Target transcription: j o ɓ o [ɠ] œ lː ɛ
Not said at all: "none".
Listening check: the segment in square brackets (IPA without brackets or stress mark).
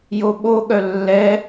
ɠ